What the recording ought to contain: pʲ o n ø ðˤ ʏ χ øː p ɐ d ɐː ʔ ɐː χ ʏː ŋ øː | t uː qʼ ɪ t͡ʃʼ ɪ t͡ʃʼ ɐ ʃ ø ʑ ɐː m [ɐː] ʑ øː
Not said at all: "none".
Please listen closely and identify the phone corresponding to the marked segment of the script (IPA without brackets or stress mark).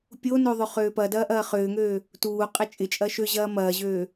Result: ɐː